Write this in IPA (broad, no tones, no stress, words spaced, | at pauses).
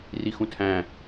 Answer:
rixũtʰæ̃